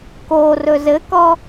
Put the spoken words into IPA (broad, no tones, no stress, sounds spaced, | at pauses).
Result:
k o r ɵ z ɘ k ɔ